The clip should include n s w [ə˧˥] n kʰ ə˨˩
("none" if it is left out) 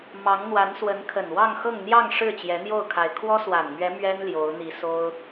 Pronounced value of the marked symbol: ə˧˥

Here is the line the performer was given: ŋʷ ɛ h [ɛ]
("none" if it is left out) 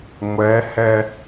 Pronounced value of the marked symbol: ɛ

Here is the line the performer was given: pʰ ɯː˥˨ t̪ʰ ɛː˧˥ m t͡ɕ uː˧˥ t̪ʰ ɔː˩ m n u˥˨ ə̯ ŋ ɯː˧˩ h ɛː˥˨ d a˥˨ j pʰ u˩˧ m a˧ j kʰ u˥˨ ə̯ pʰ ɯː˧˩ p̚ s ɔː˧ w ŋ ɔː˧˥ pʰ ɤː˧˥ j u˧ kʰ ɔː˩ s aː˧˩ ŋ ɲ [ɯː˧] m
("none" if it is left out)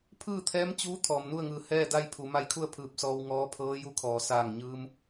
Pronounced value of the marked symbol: ɯː˧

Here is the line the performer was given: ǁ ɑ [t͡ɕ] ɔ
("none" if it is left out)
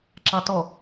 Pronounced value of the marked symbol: t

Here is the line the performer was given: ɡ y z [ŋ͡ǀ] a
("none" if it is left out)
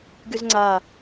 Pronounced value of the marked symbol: ŋ͡ǀ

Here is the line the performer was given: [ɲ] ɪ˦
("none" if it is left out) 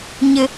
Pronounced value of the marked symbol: ɲ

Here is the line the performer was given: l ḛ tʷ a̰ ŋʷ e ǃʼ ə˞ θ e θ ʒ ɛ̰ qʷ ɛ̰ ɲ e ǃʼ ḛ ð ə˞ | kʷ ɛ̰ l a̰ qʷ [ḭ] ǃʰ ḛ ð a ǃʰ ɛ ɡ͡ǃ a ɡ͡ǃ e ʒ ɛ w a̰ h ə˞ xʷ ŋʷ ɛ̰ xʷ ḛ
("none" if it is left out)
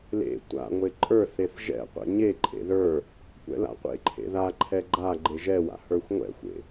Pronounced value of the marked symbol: ḛ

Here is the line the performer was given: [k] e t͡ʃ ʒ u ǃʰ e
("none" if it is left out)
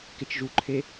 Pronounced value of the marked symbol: k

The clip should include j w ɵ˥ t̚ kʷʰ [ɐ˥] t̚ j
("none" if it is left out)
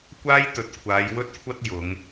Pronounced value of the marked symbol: ɐ˥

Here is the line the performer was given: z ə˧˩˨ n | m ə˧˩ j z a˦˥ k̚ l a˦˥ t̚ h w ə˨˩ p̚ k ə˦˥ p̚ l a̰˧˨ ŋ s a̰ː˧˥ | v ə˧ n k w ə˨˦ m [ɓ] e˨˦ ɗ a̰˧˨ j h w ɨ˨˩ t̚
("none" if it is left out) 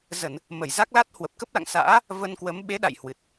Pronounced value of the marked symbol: ɓ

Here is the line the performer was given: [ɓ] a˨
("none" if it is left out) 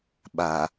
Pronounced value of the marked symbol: ɓ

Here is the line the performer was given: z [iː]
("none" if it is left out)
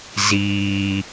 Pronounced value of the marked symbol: iː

